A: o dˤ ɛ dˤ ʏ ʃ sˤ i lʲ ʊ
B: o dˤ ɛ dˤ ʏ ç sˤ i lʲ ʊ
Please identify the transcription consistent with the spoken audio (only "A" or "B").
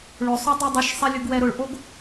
A